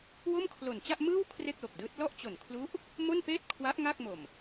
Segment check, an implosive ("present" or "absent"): absent